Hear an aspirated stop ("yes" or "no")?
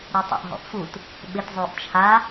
yes